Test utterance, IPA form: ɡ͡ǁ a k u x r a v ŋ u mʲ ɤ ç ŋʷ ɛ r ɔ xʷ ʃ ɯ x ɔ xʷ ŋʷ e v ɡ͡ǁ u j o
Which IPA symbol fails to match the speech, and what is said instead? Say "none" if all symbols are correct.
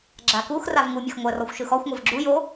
ç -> x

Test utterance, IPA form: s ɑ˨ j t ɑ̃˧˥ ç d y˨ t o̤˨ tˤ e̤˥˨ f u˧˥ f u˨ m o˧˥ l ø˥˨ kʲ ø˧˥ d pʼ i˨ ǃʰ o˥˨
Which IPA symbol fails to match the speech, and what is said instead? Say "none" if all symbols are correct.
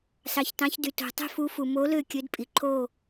j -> ç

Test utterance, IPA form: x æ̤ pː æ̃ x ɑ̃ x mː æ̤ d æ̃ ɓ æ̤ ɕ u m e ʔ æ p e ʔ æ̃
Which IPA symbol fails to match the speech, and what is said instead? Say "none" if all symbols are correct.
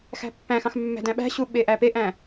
m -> ɓ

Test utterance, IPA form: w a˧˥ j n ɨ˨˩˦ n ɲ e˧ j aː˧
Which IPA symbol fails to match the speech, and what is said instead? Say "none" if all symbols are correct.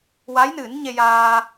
none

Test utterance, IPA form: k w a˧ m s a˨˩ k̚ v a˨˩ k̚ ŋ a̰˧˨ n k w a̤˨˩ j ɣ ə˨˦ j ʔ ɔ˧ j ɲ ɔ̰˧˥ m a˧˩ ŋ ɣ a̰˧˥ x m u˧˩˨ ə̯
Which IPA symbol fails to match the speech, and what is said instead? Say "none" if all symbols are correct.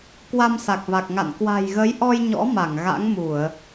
x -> ŋ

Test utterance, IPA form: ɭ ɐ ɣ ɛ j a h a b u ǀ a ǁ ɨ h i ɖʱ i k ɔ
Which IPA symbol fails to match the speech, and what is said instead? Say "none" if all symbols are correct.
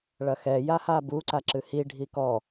ɣ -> x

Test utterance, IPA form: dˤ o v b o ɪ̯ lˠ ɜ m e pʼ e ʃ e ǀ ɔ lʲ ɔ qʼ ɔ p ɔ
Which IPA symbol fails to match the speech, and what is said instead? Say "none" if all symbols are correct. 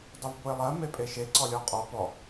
none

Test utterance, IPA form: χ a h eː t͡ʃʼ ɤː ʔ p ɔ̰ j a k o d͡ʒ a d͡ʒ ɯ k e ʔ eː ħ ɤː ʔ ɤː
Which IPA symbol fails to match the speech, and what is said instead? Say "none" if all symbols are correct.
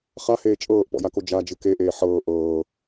none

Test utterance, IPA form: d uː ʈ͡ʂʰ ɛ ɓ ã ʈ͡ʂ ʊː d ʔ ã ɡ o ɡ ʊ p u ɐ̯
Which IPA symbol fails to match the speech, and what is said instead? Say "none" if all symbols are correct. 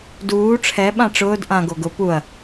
none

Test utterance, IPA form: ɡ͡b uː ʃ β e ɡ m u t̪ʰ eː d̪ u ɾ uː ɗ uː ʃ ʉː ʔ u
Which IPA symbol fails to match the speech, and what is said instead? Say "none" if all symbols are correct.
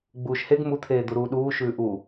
β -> h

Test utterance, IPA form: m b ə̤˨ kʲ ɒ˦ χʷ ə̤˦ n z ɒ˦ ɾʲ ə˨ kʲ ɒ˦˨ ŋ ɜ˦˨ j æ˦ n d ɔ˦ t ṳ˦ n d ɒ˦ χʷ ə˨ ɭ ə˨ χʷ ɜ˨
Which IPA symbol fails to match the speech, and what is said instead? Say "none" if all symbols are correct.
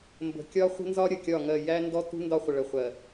none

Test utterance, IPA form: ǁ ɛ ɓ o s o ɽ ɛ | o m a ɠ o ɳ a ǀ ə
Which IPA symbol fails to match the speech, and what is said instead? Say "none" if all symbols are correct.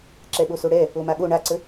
none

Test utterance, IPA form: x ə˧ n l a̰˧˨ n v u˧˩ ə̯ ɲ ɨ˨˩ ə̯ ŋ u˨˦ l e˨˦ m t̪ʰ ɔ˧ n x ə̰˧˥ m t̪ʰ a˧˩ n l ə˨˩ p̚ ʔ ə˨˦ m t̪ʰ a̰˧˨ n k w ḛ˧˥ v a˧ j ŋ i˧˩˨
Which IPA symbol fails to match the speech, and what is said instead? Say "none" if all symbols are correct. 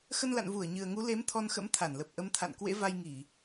none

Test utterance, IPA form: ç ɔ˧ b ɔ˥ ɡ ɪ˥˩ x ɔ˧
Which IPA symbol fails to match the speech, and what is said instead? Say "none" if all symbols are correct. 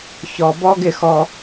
none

